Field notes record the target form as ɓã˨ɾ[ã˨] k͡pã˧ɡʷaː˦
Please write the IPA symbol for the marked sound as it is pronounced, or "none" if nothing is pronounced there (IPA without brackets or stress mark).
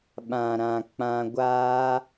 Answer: ã˨